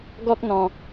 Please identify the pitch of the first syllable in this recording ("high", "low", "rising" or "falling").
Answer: high